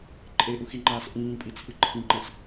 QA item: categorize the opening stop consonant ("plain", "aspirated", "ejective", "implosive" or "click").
click